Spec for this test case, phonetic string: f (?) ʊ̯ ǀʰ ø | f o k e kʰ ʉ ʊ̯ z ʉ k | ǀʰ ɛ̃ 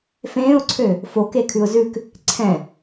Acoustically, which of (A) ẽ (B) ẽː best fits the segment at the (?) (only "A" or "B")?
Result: B